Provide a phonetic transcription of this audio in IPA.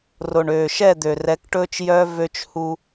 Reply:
r o˨ ɳ øː˨ ʃ ɛ˦˨ d̪ ø˨ r ɛ˨˦ k ʈ ɵː˦ t͡ʃ j œ˦ v ø˦ t͡ʃ h u˦

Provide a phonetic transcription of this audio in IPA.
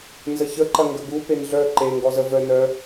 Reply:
n z ə ç ə ǃ ɐ ŋ ɡ ə ɡ u p e n ɮ œ ǃ e ŋ ɡ ɔ z ə v œ n œ

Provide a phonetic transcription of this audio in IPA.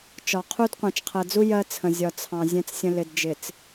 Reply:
t͡ʃ ɒ˨ qʰ u˦ d qʷ ɑ̃˨ t͡ʃ qʰ ɜ˨ d͡z u˦ j ɜ˦ t͡sʰ ə̃˨ zʲ ɒ˨ t͡sʰ ɑ̃˨ zʲ ɛ̃˦ t͡s sʲ ə̃˦ l ɪ˨ d d͡ʒ ɪ˨ t͡s

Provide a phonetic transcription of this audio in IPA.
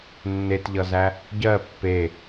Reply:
nː e t ʎ ʌ z æ | ɟ ɜ pː e

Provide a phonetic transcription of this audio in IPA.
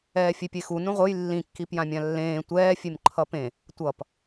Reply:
ɛː fʲ e pʲ e x u n ũ ʁʷ ɯ j lː ĩ kː i p j ã mʲ ã lː ẽː tʷ ɛː fʲ e m ǃʰ ʌ p ẽ | tʷ ʌ p

